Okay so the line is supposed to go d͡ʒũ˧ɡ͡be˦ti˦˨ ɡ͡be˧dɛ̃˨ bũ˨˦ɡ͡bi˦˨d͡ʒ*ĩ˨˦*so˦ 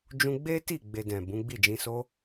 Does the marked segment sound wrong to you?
yes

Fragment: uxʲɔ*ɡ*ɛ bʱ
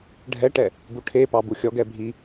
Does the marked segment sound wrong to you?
no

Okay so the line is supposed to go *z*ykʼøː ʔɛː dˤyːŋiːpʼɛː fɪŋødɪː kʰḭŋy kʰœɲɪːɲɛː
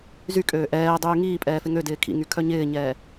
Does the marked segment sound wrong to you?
no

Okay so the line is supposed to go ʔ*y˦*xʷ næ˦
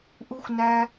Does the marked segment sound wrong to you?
yes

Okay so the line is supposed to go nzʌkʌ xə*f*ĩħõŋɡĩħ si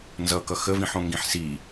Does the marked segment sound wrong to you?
yes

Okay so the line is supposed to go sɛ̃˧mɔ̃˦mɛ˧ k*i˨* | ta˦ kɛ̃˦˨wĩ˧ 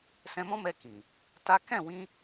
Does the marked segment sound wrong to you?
yes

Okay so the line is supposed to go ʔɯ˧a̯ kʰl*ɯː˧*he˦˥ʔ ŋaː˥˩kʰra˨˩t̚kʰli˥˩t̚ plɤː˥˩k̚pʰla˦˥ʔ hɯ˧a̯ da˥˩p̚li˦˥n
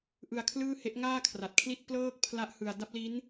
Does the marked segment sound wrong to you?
yes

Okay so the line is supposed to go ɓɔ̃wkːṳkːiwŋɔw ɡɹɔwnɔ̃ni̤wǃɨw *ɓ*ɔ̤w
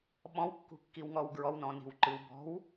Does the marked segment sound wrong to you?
yes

